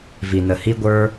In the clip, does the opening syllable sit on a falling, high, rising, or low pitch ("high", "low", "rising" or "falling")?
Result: low